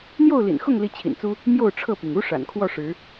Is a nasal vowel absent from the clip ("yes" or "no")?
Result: yes